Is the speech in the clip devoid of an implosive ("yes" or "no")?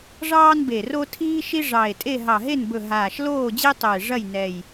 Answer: yes